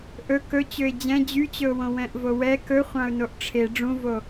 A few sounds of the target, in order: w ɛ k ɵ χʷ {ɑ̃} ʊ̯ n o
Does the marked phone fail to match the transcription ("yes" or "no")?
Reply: no